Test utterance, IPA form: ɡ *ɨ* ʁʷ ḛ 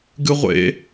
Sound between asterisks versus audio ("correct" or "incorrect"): correct